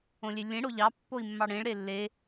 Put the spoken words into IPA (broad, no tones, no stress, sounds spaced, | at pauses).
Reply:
õ lʲ e lʲ ẽ ɽ o ʎ ɑ pː o i̯ mː ɑ ɽ ẽ ɭ ɾ e lː e